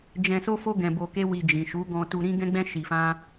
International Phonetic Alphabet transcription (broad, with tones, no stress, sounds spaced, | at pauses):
d͡ʒ ɛ̃˧ s o˦ f o˦ ɡ ɛ̃˧ b o˧ k e˦ w i˧ d͡ʒ ĩ˨ ʃ u˨˦ ɡ ɔ̃˧ t u˧ ɾ ĩ˦ ɡ ɛ̃˦ ɡ͡b ɛ̃˦ ʃ i˧ f ã˦